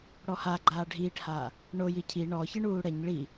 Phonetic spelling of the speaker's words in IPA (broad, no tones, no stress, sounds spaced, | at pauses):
ɽ ɔ h a ɡ͡ǃ aː ɖʱ iː ʈ h aː | ɳ o j i cʰ i ɳ ɔ ç ɯ ɳ uː ɽ ɛ ɲ ɭ i